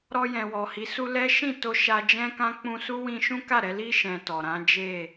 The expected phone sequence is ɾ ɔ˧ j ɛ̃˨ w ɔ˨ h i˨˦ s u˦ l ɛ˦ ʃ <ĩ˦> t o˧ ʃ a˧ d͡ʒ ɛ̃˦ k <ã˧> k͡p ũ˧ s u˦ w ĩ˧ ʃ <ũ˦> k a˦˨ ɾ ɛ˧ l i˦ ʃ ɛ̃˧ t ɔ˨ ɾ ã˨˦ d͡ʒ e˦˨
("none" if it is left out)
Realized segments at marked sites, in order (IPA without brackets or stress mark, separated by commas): ĩ˦˨, ã˦, ũ˦